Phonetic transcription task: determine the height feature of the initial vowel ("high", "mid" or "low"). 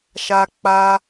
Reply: low